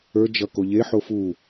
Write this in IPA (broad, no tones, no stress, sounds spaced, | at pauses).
ə˞ d͡ʒ ʌ k o ʎ e ħ o f u